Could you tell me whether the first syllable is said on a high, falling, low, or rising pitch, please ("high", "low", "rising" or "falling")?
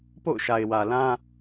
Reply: falling